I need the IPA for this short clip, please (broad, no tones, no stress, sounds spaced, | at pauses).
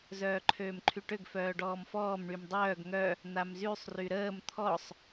z œː ǃʰ øː m ǃʰ y ʈ ø ɡ f œː ɖ ɔː m f ɔː m ɳ y m dˤ œː ɡ ŋ œ | n̪ a m z y sˤ r y ɾ əː m t̪ʰ ɔ sˤ